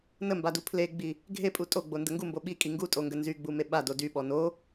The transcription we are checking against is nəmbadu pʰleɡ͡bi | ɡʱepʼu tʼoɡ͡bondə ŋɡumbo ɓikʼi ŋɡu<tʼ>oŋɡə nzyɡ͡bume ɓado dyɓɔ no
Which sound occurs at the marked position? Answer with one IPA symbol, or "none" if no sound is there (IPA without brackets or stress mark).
tʼ